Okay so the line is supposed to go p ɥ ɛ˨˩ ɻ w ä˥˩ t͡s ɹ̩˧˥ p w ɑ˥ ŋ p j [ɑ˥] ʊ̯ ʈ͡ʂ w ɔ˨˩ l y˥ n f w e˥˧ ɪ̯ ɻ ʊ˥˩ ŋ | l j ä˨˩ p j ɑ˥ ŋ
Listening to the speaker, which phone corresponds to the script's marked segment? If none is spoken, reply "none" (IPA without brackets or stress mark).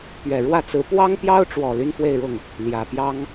ɑ˥